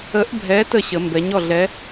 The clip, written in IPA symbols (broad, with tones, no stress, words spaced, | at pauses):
ə˨˥ʔbʱɛ˨˥ tə˥˩ɕə˩˧ mbɛ˩˧ɲɔ˥˩ɮɛ˨˥